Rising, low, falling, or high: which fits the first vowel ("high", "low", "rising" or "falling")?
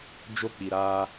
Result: high